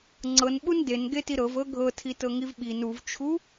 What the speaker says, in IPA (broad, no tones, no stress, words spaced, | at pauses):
ŋ͡ǀɤnɓun denɡeti ɾɤvɤ ɡʱɤtʰitɤŋiv ɓin uvt͡ʃʰu